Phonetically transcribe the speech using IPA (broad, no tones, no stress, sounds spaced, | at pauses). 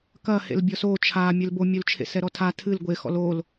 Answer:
k ɐ h ḛ l bʲ ɔ s o t͡ʃʰ a mʲ e l b o mʲ u l t͡ʃʰ ḛ s ɛ ɾ ɔ tʰ a tʰ ɨ l ɡʷ e x ɔ̰ l o l